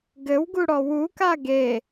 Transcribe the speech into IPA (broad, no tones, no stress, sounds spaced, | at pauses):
ɡ ɘ w ɡ u ɽ ɔ w u k a ɡ e